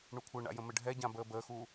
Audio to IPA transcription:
ɳukʷʰɘɳa̰ jə̃mɘɖʱɛɟã bəːbəːxuː

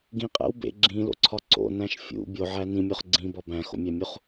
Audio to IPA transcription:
ɡĩqʼæ̰w bḛ ɡ͡ǁĩlo̰ǀʰɒ ǀo̰næ̃ʃ fʲṵ bʲoʕæ nĩmʲoχ ɡ͡ǀĩbɒ bæ̃xo̰mʲæmʲuχ

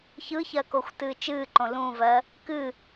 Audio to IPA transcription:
çɯçɜ koxʷtɨːt͡ʃɨːǃõ lũvɜ | kɨ

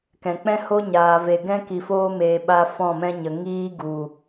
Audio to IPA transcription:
kɛ̃˨k͡pɛ̃˦ ho˦ ɲaː˨ve˨ ɡɛ̃˦ ki˨foː˦ meː˧ɓa˦ fɔ̃˦˨mɛ̃˦ɲə˨ ŋiː˦ɡu˨

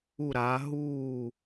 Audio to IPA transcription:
u˧˩ɾaː˩˧ ɦuː˧˩

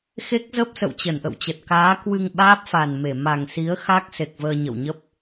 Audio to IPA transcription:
xe˦˥k̚zə˦˥p̚ sə̰˧˨wt͡ɕə˧˩nʔə̰˧˨wt͡ɕə˨˩t̚ kaː˨˦kwɨ˧ŋ ɓaː˦˥p̚fa˨˩nme˧˩ ma˨˩ŋsi˨˦ə̯ xa˦˥k̚ se˨˩k̚vəː˧ ɲə̰˧˨wɲə˦˥p̚

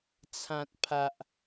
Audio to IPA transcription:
t͡sʰã˨t̚ pʰa˨ʔ

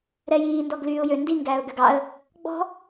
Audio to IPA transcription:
ɾɛjiː ndɔɡlyːʊ̯jø ndi ŋɡæːʊ̯ɡøɡɑə̯ | ɡ͡bɔ̤

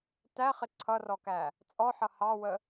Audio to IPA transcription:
tæχɪ ǀʰʌrɔkæ | t͡sʼɔħʌ hɑwə

